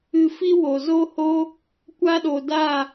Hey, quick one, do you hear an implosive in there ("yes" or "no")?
yes